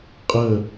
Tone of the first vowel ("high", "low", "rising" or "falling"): falling